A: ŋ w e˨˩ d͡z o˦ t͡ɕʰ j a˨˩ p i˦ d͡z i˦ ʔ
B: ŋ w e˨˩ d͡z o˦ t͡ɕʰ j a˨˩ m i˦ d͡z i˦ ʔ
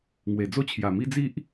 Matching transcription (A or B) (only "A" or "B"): B